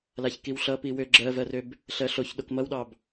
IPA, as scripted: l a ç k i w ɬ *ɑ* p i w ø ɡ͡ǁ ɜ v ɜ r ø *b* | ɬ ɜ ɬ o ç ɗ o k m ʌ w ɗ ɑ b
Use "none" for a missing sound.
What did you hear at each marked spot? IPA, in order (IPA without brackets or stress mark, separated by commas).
ʌ, b